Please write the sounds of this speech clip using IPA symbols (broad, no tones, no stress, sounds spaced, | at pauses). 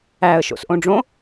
æ ə̯ ʃ o̰ s ʔ õ ɖ͡ʐ õ